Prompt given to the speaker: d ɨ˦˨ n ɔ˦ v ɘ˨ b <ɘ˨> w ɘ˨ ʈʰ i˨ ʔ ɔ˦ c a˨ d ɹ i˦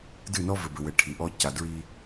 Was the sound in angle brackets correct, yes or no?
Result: yes